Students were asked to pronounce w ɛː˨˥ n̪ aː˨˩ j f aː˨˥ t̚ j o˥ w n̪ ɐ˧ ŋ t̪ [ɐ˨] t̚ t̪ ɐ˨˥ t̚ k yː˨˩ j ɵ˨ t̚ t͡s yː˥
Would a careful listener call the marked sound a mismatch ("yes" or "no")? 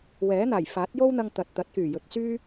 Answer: no